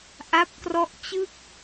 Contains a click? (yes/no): no